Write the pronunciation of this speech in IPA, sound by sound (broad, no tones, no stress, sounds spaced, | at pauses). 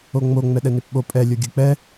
o ŋ͡m o ŋ͡m ɛ ɗ ɛ n e p ɓ o pʼ ɛ lʲ o ɡʲ ɯ k͡p ɛ